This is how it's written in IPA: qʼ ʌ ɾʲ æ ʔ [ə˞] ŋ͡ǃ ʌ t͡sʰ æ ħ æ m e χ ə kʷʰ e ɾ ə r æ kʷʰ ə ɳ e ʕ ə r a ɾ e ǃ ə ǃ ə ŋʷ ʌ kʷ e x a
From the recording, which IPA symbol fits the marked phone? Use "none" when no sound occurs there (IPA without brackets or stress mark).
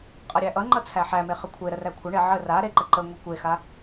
ʌ